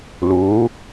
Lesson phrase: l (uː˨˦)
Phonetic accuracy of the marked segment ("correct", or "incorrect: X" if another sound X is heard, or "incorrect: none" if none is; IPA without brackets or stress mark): correct